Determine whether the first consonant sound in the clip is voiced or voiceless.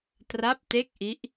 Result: voiceless